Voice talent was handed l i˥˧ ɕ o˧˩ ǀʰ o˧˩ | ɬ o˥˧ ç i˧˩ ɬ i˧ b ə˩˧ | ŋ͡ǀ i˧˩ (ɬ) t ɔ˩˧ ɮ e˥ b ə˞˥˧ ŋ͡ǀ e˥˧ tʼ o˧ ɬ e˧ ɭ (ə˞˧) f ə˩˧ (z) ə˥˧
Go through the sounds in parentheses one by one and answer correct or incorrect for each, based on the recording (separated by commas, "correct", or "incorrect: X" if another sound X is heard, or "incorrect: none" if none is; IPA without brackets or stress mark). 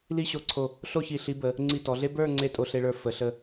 incorrect: none, correct, incorrect: ɬ